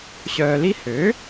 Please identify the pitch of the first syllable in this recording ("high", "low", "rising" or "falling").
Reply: low